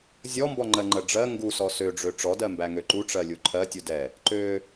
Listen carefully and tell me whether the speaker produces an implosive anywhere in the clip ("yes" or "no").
no